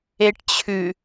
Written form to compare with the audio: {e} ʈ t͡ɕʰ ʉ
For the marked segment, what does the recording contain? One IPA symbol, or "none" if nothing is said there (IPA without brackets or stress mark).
e